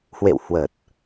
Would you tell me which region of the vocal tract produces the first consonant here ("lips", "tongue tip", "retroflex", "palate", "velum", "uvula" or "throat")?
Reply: throat